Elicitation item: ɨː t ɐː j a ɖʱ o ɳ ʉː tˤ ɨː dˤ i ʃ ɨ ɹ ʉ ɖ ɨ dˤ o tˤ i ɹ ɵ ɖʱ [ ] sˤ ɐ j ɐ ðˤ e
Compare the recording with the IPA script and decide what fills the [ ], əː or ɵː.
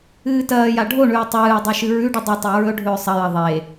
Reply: ɵː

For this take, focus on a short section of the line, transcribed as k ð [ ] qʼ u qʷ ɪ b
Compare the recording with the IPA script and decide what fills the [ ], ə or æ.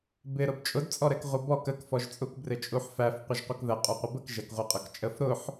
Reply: ə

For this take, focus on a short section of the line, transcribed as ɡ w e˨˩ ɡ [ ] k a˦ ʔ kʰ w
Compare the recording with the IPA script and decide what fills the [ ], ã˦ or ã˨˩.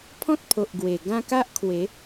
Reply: ã˦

